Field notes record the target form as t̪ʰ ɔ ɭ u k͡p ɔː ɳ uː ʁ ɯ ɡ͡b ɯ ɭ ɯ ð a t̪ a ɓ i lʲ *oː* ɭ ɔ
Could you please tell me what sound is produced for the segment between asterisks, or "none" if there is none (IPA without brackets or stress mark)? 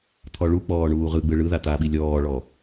ɔː